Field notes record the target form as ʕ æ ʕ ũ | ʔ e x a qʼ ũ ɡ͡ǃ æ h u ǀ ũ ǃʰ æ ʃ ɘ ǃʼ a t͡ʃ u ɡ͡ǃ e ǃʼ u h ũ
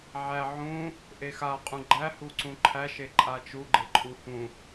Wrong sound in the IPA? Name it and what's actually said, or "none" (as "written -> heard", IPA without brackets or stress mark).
ɘ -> e